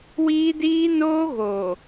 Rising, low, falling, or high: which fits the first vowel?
high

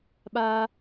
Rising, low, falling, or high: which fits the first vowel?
high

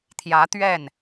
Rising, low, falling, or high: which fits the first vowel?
rising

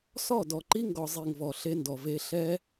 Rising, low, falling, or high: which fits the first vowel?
falling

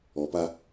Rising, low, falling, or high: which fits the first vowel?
low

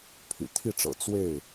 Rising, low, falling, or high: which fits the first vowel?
low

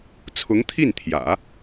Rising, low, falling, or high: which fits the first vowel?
rising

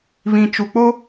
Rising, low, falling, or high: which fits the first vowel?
low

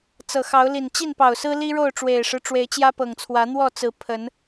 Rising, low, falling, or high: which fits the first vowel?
low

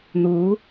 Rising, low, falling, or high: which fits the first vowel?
rising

